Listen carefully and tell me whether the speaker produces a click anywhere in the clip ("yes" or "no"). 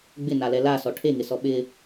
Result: no